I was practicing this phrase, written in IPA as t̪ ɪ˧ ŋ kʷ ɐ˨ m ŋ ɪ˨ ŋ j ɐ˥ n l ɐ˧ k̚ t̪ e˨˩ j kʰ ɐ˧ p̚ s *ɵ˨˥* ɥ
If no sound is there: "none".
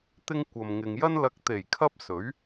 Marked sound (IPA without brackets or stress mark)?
ɵ˨˥